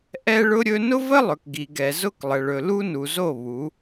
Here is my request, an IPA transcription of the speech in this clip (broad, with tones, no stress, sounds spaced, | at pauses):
ʔ ɛ˦ ɭ ʊ˦ ɾʲ ɵ˦ n ʊ˦ v ə˦ lˠ ɵ˨ k ɡ i˨ ɡ ɛ˨ z ʊ˦ k lˠ ə˨ ɭ ɵ˨ l u˦ n u˨ z o˦˨ β u˨˦